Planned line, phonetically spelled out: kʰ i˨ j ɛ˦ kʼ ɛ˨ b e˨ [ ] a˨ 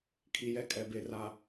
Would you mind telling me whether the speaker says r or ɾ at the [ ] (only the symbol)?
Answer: r